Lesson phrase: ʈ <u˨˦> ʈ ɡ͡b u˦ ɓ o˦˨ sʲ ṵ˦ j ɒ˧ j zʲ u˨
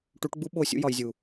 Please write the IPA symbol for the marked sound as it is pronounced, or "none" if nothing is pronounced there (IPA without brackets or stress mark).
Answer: u˨˦